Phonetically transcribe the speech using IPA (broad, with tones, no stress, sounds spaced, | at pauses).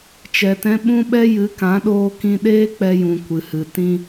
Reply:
t͡ʃ ɛ˧ t ɛ̃˦ ɓ ũ˦ ɓ ɛ˦ j ɨ˨˦ k ã˨˦ ɗ oː˧ k ĩ˧ ɗ eː˦ k͡p ɛ˧ j ũ˨ kʷ ɨ˨ h ɨ˨ t ĩ˧